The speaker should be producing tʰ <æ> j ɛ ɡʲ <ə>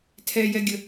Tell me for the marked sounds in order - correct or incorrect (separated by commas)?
incorrect, correct